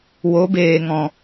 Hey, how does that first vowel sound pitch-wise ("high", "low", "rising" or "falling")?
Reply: rising